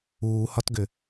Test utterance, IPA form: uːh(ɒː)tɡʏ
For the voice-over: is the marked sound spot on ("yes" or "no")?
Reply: no